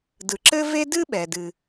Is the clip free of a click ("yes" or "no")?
no